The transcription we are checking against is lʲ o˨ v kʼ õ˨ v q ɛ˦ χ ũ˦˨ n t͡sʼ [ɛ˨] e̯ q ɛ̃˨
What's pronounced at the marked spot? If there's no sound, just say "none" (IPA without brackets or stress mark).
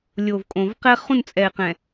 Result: ɛ˨